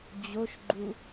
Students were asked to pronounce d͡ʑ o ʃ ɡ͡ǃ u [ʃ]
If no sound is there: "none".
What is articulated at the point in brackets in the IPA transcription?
none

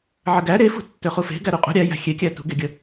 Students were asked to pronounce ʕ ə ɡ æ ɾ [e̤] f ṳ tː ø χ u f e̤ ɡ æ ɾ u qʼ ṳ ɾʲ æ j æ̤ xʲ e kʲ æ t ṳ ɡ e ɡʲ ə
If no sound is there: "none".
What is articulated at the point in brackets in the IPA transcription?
e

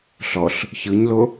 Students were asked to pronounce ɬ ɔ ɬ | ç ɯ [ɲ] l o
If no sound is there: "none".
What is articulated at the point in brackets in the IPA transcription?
ɲ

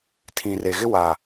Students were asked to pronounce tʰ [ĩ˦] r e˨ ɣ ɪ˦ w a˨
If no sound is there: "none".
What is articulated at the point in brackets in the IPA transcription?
ĩ˨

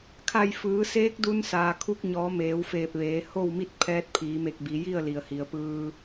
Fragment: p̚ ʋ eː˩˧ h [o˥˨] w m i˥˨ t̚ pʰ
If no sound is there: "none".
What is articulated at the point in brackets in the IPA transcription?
o˥˨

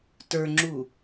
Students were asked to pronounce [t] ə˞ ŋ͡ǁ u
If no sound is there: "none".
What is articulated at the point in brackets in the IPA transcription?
t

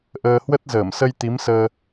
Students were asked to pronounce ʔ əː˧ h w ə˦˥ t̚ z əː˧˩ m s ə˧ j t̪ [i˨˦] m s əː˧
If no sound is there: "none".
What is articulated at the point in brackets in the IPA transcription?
i˨˦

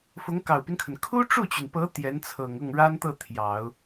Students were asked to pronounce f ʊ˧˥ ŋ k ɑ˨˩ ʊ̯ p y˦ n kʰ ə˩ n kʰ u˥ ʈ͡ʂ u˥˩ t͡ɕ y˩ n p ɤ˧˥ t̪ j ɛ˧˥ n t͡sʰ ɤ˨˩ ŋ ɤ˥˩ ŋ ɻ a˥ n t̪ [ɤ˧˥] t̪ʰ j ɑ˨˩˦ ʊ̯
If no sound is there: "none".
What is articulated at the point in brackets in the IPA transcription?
ɤ˥˩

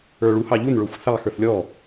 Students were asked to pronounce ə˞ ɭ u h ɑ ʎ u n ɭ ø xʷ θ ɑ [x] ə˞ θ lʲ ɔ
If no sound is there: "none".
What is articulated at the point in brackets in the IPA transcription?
x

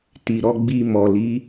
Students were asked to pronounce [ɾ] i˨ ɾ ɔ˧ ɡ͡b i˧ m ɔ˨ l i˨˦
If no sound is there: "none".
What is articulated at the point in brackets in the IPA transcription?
t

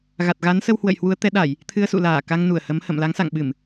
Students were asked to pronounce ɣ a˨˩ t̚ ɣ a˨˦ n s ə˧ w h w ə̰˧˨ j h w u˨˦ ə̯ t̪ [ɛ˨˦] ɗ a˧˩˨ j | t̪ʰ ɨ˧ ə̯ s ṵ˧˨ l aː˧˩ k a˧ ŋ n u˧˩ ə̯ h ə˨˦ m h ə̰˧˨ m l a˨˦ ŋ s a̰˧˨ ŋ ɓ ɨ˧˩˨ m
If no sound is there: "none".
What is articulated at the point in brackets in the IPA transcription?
ɛ˨˦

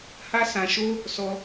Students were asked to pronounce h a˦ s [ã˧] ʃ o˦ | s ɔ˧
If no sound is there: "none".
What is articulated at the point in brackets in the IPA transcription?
ã˧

